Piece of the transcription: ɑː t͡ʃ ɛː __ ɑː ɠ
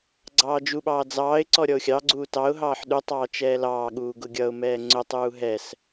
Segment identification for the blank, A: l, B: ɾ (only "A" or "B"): A